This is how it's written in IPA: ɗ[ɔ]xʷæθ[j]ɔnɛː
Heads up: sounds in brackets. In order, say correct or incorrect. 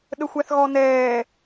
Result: incorrect, incorrect

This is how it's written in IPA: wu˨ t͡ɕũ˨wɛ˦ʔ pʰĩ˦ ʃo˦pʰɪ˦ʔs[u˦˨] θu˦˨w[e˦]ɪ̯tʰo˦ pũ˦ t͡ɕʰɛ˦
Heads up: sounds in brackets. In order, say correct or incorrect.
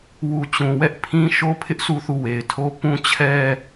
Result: correct, incorrect

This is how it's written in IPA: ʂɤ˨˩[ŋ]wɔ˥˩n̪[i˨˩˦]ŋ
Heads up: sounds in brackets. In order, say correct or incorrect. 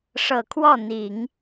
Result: incorrect, correct

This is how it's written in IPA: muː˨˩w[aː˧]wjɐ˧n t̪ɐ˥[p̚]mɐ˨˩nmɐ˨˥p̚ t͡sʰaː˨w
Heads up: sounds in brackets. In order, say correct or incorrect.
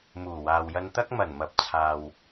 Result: incorrect, incorrect

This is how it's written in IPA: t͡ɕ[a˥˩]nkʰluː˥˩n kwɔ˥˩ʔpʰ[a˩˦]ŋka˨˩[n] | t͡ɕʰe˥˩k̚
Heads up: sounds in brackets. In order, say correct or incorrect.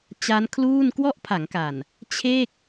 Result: incorrect, correct, correct

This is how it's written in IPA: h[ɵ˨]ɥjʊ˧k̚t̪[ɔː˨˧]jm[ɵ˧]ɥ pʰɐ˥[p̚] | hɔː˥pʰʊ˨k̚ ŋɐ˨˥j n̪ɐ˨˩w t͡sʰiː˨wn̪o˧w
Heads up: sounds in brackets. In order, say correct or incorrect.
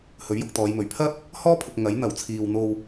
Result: incorrect, correct, incorrect, correct

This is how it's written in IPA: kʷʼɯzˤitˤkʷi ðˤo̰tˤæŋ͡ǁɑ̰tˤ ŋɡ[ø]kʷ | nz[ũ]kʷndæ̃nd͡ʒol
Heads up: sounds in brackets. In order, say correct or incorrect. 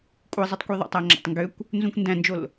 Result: correct, correct

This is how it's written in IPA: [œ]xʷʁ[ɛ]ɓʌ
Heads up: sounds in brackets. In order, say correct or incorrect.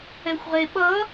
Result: incorrect, incorrect

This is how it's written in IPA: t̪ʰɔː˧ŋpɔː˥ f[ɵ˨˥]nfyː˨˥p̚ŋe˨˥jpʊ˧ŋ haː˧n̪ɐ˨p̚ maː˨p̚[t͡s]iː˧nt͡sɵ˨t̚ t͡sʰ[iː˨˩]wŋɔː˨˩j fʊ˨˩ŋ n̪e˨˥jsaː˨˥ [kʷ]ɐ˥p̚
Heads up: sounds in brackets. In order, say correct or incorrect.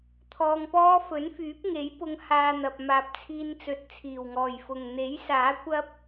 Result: correct, incorrect, correct, correct

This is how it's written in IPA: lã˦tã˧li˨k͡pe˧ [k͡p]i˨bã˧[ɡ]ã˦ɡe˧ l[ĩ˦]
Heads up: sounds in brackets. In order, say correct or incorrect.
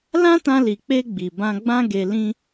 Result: incorrect, incorrect, correct

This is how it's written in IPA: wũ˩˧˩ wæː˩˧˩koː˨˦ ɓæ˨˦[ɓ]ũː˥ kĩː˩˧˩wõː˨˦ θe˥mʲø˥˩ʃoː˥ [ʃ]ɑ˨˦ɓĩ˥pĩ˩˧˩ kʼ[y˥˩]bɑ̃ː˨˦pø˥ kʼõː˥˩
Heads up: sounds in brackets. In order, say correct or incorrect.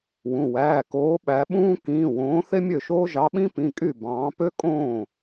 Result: correct, incorrect, correct

